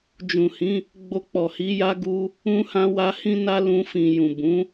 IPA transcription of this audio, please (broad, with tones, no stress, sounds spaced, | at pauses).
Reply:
d͡ʒ ũ˨ h ĩ˨˦ | ɡ͡b o˧ k͡p ɔ˨ h i˨˦ j a˦ ɡ u˦ | ũ˧ h ã˧ w a˧ h ĩ˧ n a˧ l ũ˧ f ĩ˨ j ũ˨ b ũ˨˦